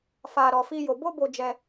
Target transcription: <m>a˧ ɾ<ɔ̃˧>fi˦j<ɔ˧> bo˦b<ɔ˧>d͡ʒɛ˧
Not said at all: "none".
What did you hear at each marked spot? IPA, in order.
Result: f, ɔ˧, o˧, o˧

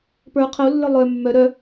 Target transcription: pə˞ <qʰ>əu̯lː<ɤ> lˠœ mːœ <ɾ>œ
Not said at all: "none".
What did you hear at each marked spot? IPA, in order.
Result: qʰ, ə˞, ɾ

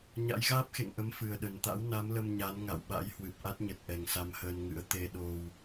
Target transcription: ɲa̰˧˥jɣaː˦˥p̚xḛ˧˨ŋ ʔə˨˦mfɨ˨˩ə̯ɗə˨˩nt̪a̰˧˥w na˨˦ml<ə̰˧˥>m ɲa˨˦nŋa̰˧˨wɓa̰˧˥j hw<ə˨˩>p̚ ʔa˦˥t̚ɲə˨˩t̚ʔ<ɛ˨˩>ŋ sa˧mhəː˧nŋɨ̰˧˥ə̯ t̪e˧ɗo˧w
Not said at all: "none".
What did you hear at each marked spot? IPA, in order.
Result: ə˧, ɨ˨˩, ɛ˨˩

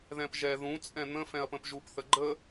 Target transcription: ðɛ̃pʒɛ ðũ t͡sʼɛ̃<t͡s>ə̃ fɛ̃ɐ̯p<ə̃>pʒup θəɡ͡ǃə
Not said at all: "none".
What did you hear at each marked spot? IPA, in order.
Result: n̪, ə̃

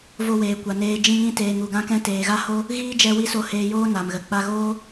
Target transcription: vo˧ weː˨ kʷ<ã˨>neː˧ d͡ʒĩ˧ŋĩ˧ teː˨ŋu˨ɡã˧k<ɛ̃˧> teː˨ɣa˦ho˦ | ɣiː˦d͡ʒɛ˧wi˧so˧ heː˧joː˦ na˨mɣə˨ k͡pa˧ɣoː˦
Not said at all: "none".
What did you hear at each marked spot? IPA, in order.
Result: a˨, ɛ̃˧

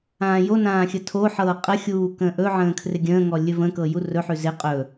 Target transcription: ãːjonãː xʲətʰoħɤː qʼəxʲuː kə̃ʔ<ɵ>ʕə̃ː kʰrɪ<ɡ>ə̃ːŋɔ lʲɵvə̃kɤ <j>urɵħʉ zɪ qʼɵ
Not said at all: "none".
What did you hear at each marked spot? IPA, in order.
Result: ɵ, ɡʲ, j

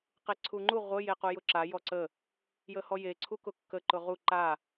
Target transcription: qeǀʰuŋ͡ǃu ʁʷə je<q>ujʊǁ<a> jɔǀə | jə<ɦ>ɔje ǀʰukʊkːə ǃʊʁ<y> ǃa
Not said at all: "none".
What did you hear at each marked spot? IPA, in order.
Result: q, a, h, u

